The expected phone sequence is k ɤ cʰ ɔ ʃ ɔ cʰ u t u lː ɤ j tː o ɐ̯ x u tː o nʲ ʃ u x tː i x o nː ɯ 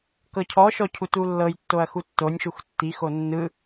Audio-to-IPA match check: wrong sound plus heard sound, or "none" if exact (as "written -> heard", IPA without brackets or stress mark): none